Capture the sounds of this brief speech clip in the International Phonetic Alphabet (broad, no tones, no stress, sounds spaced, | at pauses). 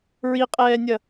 ɹ i qʼ ɛː nʲ ɐ